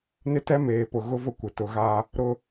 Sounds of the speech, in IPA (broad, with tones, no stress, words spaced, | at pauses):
nɪ˦tɛ˦meː˨ pʊ˨ɣʊ˦vʊ˦kʷɪ˨ tʊ˨ɣa˦ | ɾʊ˦